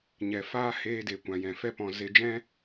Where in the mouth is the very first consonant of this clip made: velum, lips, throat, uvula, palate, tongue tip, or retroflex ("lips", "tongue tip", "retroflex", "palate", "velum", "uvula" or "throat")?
palate